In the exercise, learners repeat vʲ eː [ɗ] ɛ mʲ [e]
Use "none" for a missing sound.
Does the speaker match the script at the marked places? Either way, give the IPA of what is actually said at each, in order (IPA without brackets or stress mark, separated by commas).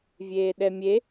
ɗ, e